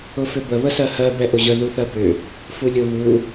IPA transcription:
ʊfʏbə βəsɜhɜ bɛʔʊʑə ðuθɜbʏ | fulʲʊ βu

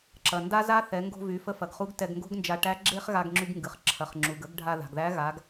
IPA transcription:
ǁɐ˩nda˥za˥ θɛ˩˧ŋɡo̤˧vy˩˧ fə˧˥fɐ˩ɡχu˧˥ɡ tɛ˧ɡŋɡo̤˥ɡnd͡ʒa˧ ʈæ˧˥ɡ͡ǁe˥χɣa˧ɡ ŋ͡ǁy˧ɡŋɡɨ˩χ ǁʰɐ˩χŋ͡ǁu˩ɡ ə˧˥ɡɖʱa˧ ða̤˩ɡðæ˧˥ɣa˩˧ɡ

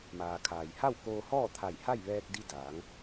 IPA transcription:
maː˩kʰaː˩jha˥˨w koː˧hɔː˥˨ t̪ʰa˧˩jha˥˨jʋɛː˧k̚di˧ daː˩˧ŋ

